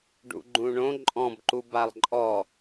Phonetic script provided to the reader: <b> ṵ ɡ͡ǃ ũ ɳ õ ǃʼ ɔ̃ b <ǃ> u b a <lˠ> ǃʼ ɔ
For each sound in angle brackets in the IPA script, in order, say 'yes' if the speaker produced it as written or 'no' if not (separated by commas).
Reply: no, yes, yes